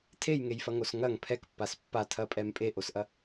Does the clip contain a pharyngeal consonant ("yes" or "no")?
no